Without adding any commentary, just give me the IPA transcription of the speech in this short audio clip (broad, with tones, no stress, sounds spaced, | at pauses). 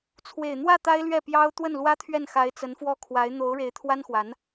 t͡sʰ w e˨˩ ɪ̯ n̪ w ä˥˩ t̪ a˥ ɪ̯ l ɥ ɛ˥˩ p j ɑ˥ ʊ̯ t̪ w ə˥˩ n l w ä˥ t̪ʰ ɥ ɛ˥˩ n x a˧˥ ɪ̯ t͡s ə˧˥ n f w ɔ˥ kʰ w a˧˥ ɪ̯ n̪ o˧˥ ʊ̯ ɻ e˧˥ ɪ̯ t̪ʰ w a˥ n x w a˧˥ n